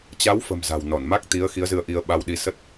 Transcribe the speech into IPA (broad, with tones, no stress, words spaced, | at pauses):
t͡ɕa˨˦wfə̤˨˩m za̤˨˩wnɔ˧˩nma˦˥k̚t̪i˨˦ə̯ xi˨˦ə̯zɨ˧ə̯ʔi˧ə̯ ɓa˧wɗi˧ sə˦˥t̚